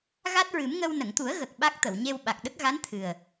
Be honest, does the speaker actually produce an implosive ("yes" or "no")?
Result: yes